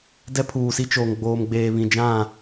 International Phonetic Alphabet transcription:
d ɛ˦ pʰ uː˨ s i˦ t͡ʃ oː˨ ŋ ɡ͡b oː˨ m ɡ͡b eː˨ β ĩ˨ d͡ʒ ã˦˨

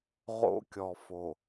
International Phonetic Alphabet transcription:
ʁ o̰˦ kʲ ɔ˨ f o˨

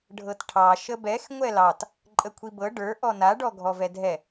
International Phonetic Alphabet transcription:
ɖʱ ɤ t ʈʰ ɑ ʃ ə b ɛ x ŋʷ ɛ l ɑ t | ǃʼ ə kʷʰ i b ɤ ɖ ə˞ ʔ ɔ n a ɖ ɔ ɡʱ ɔ v ɛ dʱ ɛ

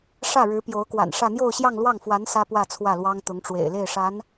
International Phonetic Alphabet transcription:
ʂ ä˥˩ ɻ ɻ̩˧˥ p j o˧˥ ʊ̯ k w a̰˨˩ n ʂ ä˥˧ n̪ j o˥˧ ʊ̯ ɕ j ɑ˥˧ ŋ l w ɑ˥˩ ŋ f w a˧˥ n s ä˥ p w ä˥˧ t͡sʰ w ä˥˩ l w ɑ˥ ŋ t̪ ʊ˧˥ ŋ ʈ͡ʂ w ḛ˨˩ ɪ̯ l e˥˩ ɪ̯ ʂ a˧˥ n

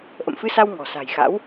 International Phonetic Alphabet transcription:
ʔ ə̰˧˨ m f ɨ˧ s a˧ w ŋ ɔ̤˨˩ s a̤˨˩ j x a̰˧˥ w

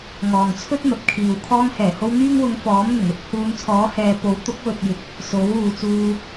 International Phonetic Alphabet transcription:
ŋ ɔː˨ ŋ t͡sʰ ɵ˥ t̚ n̪ ɐ˨˥ p̚ kʰ iː˨ w kʰ ɔː˧ ŋ h ɛː˨˩ h o˧ w n̪ yː˥ ŋ w ʊ˧ ŋ f ɔː˨˥ m n̪ ʊ˨˩ ŋ ɵ˨˥ t̚ h uː˨˧ n t͡sʰ ɔː˨˥ h ɛː˨ p o˨˥ w t̪ ʊ˨˥ k̚ w ɵ˨ t̚ j ɪ˨˥ k̚ | s o˨˥ w uː˨ t͡s uː˧

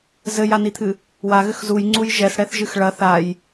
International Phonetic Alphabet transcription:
z ɘ j a n i t̪ʰ ɨ | w a ɣ ɘ x z u j ŋ͡ǀ u j ʒ ɛ s ɽ ɛ θ ʒ ɨ x ɭ ɐ θ a j

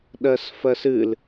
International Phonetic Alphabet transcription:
ɗ ɜ s f ɜ s ɨ l

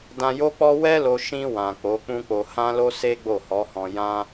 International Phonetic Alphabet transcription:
d ã˧ j o˦ k͡p ɔ˦ w ɛ˦ l o˧ ʃ ĩ˧ w ã˨ k͡p o˨˦ k͡p ũ˦ k͡p o˧ h ã˦ l o˦ s e˦ ɡ͡b o˦˨ h ɔ˨˦ h ɔ̃˧ j ã˦

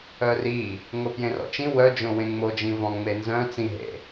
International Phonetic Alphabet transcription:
œ r i | ŋ o p j ẽ r ɔ̰ t͡ʃ ĩ w œ d͡ʒ õ w ẽ ŋ͡m o d͡ʒ ĩ v ɔ̃ ŋ͡m e n z œ̃ t͡s ĩ ɦ ḛ

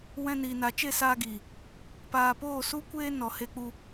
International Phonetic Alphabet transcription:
w ɛ̃˧ n iː˨ n a˨ t͡ʃ e˦˨ s aː˧ ɡ iː˨ | p aː˨ p oː˦˨ s u˦ kʷ eː˦ n ɔ˨ h e˧ k͡p u˧

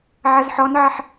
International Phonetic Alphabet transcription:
ʕ ɐ z ħ ɔ n ʕ ɐ ħ

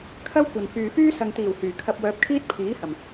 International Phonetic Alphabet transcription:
kʰ ɐ˥ w kʷ ɐ˨ n f yː˨ f yː˥ s ɐ˨ ŋ t̪ iː˨˩ w h yː˨˩ kʰ ɐ˧ p̚ w œː˧ p̚ kʰ iː˥ t̚ pʰ iː˨˥ h ɐ˨˩ m

